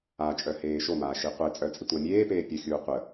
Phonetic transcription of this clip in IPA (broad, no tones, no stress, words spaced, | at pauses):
at͡ʃʼœheː ʃomaːʃi qʷet͡sʼœt͡sʼitʷa mʲeːpeː pʲəxʲuː qʷə